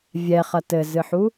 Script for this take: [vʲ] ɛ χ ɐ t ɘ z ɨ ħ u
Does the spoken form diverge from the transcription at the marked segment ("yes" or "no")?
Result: no